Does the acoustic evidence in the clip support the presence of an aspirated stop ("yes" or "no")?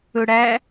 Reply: no